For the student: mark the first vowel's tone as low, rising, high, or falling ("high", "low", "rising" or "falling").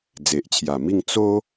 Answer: low